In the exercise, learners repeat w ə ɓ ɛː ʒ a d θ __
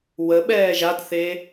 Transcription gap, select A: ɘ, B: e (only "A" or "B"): B